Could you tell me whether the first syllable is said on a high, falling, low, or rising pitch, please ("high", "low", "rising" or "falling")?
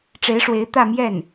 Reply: rising